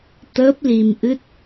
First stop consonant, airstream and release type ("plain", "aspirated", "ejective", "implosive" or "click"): plain